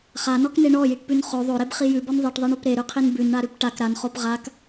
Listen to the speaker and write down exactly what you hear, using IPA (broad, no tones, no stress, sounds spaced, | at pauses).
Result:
χ a n ɔ k n e ɳ ɔ j i ʈ p ʉ n χ o ðˤ o ɾ e b χ i j ʉ b ɔ n ðˤ i ʈ ðˤ i ɳ o p ɾ e ɾ ʉ qʰ i n b ʉ n ɳ a ɾ ʉ p ʈ a k ɾ a n χ o p ʁ a k